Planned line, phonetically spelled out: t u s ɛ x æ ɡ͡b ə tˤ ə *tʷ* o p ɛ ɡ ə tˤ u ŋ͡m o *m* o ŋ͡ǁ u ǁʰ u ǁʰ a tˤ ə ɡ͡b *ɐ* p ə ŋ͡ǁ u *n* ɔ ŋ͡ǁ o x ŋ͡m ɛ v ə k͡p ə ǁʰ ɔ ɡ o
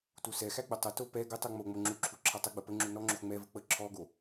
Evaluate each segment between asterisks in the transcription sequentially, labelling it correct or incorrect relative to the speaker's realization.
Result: incorrect: t, incorrect: ŋ͡m, incorrect: ə, correct

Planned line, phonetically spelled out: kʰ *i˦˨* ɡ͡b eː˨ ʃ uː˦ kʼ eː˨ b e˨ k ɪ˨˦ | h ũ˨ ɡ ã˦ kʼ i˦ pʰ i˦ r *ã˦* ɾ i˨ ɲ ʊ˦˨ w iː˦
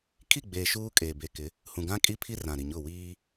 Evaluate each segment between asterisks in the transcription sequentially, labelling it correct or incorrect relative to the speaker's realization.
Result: correct, incorrect: ã˨

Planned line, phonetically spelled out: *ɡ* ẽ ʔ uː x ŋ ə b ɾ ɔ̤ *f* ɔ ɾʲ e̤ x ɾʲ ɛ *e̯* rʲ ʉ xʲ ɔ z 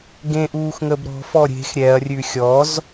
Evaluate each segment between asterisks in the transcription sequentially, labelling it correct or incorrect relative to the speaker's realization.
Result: correct, correct, incorrect: ɐ̯

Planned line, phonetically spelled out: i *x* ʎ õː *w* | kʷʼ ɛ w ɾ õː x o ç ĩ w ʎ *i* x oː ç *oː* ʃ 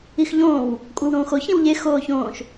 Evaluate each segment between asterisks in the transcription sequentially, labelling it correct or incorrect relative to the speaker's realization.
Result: correct, correct, incorrect: e, incorrect: õː

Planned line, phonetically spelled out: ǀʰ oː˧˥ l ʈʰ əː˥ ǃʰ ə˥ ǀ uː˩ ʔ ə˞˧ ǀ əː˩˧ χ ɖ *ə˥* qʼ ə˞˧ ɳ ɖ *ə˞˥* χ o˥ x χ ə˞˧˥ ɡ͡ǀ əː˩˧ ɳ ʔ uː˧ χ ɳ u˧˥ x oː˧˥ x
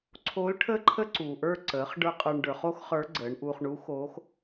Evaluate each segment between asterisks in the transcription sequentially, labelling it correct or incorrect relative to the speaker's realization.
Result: incorrect: ə˞˥, incorrect: ə˞˩˧

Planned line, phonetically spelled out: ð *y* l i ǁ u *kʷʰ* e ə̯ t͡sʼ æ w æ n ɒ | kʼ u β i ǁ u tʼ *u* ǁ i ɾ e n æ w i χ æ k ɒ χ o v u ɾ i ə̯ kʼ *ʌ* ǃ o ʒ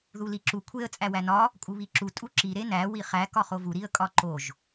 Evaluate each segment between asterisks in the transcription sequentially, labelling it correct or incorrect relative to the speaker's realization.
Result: incorrect: u, correct, correct, incorrect: ɒ

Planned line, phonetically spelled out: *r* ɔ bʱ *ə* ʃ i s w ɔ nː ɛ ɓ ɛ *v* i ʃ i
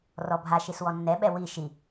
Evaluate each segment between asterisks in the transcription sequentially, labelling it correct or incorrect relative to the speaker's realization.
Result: correct, incorrect: a, incorrect: w

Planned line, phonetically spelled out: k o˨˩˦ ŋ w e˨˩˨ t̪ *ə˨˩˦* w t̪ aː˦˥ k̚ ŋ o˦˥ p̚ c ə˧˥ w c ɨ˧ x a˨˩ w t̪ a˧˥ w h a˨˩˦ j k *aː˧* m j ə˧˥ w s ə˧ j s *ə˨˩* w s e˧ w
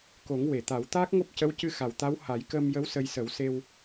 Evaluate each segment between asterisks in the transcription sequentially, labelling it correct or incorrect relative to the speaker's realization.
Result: incorrect: a˨˩˦, incorrect: əː˧, incorrect: ə˨˩˦

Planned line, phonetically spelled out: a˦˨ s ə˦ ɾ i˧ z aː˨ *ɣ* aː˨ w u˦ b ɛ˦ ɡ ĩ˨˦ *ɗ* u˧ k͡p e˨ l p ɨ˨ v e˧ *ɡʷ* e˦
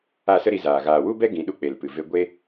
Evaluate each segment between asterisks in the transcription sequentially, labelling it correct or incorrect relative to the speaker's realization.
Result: correct, correct, correct

